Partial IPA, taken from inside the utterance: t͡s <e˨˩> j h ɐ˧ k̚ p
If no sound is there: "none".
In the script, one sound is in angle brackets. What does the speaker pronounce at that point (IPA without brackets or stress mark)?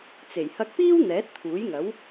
e˨˩